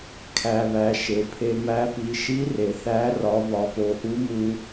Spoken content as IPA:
kʰ æ˧ β æ˩˧ ʃ e˩ pʰ e˧ m æ˧˥ p i˩˧ ʃ i˧˥ r e˩ θ æ˧˥ r ɒ˩˧ β ɒ˩˧ p o˩˧ ʔ u˧˥ m u˧

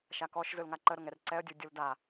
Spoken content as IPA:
ʃ a k ɔ ʃ z ɯ l ŋ a ǃ ə ɾ ʊ ŋ ɛ r ǀ ɛ ə̯ dʲ u dʲ u l d a

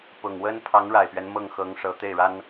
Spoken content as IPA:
p ʊ˨˩ ŋ w ə˥ n pʰ ɑ˧˥ ŋ ɻ a˨˩ ɪ̯ p ɥ ɛ˦ n m ɤ˥˩ ŋ x ɤ˧˥ ŋ ʂ ɤ˧˥ t̪ e˥˩ ɪ̯ ɻ a˥ n

